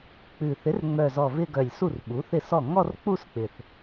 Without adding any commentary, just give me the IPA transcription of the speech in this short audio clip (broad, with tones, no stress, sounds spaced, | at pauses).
k͡p ʉ˨˩ θ ɪ˩˥ r ŋ͡m œ˨˩ z ɔ˨˩ v ɪ˧ ɡ œ˨˩ lʲ s u˥˩ r ɓ u˩˥ θ ɪ˥˩ s ɔ˥˩ ŋ ɔ˥˧ r k͡p u˥˧ s k͡p ɪ˨˩ θ